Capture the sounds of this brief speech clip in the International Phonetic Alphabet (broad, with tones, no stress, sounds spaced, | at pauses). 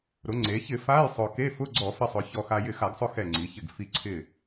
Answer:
ɾ ʊ˩˧ ŋ͡ǀ e˩˧ ç ɪ˧˩˧ f a˧˥˧ j sˤ ʊ˧ k e˧˥˧ f ʊ˧˥˧ ɡ͡ǀ ɔ˧˩˧ f ɪ˧ sˤ ʊ˩˧ ç ɔ˧ x a˧ j ɪ˧˩ x a˧˩˧ ɡ sˤ ʊ˧ x ɛ˧˩ ŋ͡ǀ i˩˧ ç ɪ˧˩ ɡ f i˧ ǀʰ ɪ˧˩